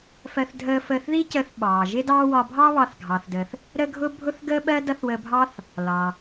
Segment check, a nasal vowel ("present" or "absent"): absent